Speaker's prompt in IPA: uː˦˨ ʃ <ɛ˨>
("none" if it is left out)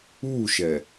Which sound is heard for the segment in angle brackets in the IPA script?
ɛ˨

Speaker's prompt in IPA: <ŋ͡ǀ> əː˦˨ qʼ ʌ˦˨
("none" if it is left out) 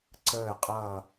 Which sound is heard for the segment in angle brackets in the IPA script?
ǀ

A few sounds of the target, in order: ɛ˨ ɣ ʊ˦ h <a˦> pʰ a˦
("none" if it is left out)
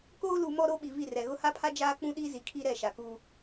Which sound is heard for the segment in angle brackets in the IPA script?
a˦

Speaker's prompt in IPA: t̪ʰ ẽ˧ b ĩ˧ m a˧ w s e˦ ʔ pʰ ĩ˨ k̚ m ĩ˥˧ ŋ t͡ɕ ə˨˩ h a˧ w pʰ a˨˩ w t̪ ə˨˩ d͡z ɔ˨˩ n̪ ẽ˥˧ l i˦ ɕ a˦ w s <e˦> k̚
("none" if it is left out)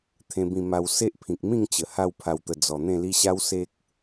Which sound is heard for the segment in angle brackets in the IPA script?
e˦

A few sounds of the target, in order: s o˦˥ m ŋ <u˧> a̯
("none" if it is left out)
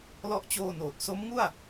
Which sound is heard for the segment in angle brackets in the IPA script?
u˥˩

